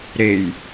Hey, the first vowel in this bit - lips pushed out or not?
no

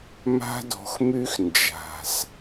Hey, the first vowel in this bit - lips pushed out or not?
no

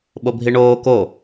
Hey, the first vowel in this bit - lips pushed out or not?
yes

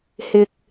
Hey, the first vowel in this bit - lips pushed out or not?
no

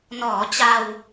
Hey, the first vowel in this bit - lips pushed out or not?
yes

